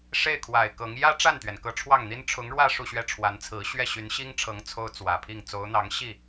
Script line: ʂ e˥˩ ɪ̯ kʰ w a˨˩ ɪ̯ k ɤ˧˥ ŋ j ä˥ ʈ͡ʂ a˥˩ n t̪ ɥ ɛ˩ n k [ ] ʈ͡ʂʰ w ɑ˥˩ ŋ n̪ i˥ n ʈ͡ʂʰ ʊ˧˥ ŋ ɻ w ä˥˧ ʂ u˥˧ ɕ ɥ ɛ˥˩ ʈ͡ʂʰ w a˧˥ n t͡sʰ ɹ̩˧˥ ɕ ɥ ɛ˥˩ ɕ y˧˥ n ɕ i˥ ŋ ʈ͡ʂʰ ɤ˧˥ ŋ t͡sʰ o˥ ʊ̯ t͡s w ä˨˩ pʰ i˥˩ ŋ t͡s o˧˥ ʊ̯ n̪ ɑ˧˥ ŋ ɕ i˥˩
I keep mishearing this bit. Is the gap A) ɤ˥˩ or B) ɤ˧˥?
B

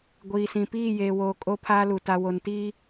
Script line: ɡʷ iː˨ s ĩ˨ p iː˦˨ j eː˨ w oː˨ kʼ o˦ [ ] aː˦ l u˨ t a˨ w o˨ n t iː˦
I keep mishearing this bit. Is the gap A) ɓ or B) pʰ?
B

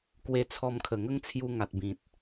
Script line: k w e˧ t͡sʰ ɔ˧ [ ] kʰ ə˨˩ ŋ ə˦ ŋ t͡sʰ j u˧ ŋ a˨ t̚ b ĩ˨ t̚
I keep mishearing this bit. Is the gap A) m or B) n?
A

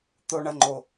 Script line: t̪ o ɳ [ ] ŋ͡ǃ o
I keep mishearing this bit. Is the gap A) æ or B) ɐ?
B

